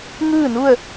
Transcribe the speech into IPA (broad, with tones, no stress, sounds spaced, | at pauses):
ŋ ɯː˥˨ n u˥˨ ə̯